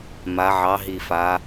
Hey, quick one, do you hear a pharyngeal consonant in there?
yes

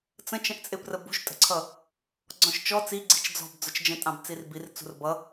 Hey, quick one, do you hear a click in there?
yes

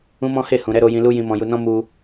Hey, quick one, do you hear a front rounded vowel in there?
no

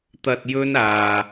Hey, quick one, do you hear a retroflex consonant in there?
no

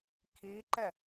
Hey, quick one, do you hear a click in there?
yes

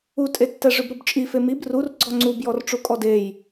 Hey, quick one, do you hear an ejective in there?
yes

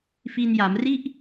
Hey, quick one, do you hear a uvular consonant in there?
no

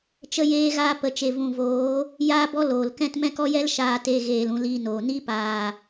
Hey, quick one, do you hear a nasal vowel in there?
yes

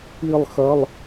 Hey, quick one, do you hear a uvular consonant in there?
no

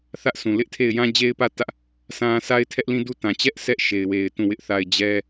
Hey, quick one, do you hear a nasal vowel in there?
yes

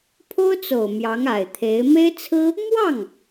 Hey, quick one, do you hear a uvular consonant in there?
no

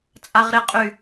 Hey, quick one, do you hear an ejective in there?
yes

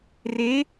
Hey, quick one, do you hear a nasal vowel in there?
no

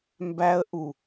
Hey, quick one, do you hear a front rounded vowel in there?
no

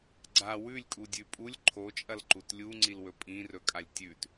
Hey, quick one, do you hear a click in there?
yes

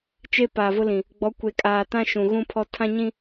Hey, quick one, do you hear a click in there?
no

